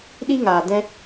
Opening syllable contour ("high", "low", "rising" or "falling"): high